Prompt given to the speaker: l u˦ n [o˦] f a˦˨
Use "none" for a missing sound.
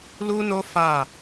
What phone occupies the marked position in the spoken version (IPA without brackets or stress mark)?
o˦